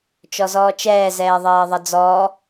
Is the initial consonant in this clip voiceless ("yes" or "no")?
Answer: yes